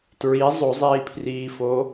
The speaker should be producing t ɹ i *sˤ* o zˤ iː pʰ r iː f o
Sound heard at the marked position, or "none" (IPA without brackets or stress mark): zˤ